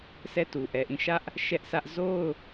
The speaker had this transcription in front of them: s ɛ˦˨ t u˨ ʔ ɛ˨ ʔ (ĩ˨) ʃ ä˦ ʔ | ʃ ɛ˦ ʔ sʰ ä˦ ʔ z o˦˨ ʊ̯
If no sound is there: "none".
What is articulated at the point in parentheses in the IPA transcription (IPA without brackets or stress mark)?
ĩ˦˨